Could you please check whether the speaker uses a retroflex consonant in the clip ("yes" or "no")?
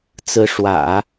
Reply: yes